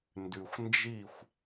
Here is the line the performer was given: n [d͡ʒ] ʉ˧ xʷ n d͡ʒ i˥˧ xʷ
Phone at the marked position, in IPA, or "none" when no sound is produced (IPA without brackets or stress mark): d